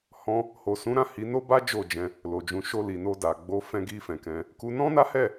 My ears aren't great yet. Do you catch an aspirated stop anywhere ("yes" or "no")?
no